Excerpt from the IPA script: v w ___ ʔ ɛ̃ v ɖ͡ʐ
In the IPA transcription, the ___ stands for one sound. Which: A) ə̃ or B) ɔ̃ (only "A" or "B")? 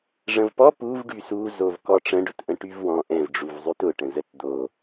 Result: B